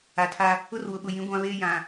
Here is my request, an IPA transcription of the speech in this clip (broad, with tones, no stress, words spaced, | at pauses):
a˨tʰa˦ | ʊ˦rwʊ˨ɓʊ˨jĩ˨˦ ɡʷã˦βeː˦jã˨